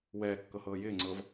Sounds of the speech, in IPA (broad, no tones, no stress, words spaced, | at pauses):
wɛːkːɤhɤː jɪːŋ͡ǀɤːv